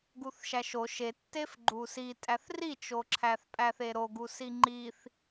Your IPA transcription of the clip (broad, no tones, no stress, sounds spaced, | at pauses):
ɡ u θ ʃ æ ʃ o ʃ e tː e f ɡ͡ǃ u s i tʼ æ θ r i t͡ʃ o ǁʰ æ θ pʼ æ θ e ɾ o ɡ u s i ŋ͡ǃ i θ